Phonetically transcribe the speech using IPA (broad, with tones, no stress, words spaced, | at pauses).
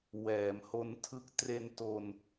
wɛː˩˦mho˦˥ntʰɯ˦˥k̚ tre˧nto˧n